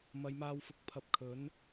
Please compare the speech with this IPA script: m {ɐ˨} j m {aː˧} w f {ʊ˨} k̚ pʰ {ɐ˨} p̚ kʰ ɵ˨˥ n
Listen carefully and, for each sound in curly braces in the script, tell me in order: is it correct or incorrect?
incorrect: ɐ˨˧, correct, correct, incorrect: ɐ˨˥

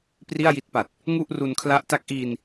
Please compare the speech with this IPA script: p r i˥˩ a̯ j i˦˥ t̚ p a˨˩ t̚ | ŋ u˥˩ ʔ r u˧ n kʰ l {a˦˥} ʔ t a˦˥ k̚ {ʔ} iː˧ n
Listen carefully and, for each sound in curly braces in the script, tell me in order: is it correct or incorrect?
correct, correct

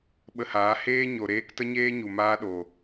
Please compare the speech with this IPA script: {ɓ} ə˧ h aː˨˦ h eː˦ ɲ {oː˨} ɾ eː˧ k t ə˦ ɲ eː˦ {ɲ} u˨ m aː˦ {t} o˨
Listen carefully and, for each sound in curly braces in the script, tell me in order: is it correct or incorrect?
correct, incorrect: o˨, correct, incorrect: ɗ

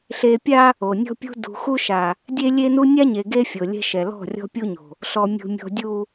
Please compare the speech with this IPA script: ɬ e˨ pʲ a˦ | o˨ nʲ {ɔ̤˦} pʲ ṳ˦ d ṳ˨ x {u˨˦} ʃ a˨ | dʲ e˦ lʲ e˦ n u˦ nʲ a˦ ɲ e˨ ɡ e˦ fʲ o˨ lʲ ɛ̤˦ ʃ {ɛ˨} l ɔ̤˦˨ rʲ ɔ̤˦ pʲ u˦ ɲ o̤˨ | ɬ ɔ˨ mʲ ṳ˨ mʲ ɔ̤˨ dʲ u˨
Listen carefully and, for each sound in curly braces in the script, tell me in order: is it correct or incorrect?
correct, incorrect: u˦, correct

